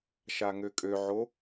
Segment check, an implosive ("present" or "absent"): absent